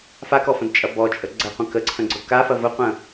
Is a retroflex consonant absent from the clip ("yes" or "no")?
yes